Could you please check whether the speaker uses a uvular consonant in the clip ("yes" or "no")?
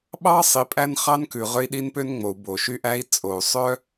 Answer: yes